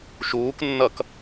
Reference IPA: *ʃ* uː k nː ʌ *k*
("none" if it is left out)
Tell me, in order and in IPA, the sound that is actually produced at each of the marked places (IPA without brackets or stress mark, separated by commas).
ʃ, k